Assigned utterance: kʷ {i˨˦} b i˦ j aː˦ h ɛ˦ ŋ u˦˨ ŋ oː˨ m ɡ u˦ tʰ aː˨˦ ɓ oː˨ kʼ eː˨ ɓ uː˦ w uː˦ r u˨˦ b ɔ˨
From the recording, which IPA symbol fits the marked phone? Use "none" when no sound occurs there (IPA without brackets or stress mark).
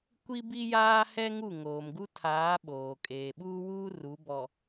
i˦